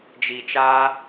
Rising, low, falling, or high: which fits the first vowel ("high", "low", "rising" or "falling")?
low